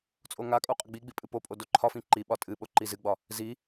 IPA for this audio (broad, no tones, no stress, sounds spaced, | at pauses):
t͡sʼ o ŋ a kʼ o qʼ ə ɡ͡b i ɡ͡b i pʼ ɨ p o pʼ o d o ǃʰ ɒ f ĩ ǃ i ɓ ɒ tʼ ɨ ɓ o ǃ i z ɨ ɡ͡b ɒ | z i